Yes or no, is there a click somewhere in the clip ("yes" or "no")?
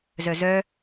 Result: no